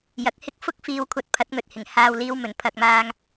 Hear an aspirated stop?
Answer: yes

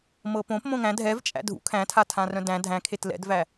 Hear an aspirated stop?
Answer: yes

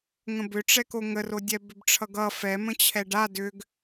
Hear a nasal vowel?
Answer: yes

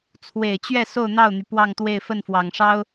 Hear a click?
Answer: no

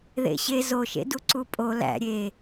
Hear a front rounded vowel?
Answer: no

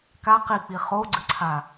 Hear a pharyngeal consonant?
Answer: no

